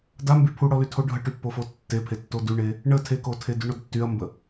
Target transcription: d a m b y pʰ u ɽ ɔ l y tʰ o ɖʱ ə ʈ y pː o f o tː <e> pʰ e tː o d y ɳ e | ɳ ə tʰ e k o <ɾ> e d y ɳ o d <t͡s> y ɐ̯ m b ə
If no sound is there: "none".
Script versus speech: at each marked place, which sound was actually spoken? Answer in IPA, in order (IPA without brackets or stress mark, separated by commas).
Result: e, tʰ, tː